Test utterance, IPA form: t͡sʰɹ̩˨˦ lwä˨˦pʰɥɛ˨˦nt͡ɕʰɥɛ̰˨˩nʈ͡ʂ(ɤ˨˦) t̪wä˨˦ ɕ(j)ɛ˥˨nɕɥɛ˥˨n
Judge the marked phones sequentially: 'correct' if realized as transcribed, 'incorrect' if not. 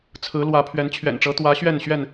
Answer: correct, incorrect

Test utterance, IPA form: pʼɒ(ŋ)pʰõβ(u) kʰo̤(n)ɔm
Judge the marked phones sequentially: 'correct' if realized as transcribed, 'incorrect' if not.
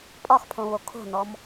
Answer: incorrect, incorrect, correct

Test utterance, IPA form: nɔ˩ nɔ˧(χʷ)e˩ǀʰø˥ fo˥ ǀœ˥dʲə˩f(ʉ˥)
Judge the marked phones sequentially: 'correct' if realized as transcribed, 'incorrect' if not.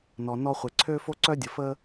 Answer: correct, incorrect

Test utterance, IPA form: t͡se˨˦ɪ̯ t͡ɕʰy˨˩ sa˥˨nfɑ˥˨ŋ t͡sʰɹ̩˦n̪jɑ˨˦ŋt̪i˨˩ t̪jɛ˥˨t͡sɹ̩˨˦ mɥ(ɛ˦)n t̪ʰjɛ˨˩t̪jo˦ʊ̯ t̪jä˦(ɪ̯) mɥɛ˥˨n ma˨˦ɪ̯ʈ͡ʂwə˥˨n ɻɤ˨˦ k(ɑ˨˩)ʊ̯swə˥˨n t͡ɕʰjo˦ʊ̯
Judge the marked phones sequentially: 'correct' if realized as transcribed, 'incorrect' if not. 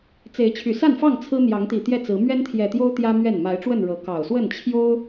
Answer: correct, incorrect, correct

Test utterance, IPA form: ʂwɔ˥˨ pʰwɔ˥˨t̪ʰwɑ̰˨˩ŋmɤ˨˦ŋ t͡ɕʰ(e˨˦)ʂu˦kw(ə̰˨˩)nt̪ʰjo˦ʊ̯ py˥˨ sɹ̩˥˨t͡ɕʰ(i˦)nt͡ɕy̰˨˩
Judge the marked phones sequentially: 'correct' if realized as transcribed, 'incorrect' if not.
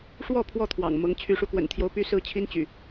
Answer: incorrect, correct, correct

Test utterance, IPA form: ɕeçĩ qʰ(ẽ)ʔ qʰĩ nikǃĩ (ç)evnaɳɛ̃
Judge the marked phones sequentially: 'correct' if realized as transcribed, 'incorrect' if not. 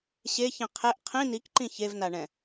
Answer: incorrect, correct

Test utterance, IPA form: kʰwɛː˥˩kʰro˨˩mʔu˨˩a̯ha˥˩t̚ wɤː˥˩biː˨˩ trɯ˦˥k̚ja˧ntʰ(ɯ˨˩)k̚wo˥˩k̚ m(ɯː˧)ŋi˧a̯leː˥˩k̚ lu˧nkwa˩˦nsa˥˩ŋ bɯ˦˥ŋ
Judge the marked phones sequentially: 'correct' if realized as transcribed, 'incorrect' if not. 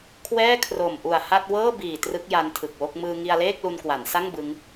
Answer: correct, correct

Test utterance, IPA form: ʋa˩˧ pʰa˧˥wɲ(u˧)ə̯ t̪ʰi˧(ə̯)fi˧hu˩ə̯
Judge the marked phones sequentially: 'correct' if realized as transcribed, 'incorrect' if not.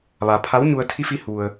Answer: correct, incorrect

